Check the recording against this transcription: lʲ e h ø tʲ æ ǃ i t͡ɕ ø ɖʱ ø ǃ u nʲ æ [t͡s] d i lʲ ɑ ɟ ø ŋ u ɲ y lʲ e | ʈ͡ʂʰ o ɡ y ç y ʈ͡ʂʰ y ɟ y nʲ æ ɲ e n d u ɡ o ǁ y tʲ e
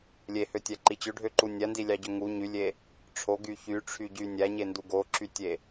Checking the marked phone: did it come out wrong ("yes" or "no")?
yes